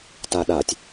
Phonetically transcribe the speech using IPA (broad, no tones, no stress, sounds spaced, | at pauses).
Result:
t a ɗ a tʲ